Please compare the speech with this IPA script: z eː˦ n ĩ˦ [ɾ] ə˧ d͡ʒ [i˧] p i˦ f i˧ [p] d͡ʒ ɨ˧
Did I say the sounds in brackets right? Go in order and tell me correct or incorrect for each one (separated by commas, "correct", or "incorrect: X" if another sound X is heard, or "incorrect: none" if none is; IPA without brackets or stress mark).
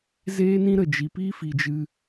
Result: correct, correct, incorrect: none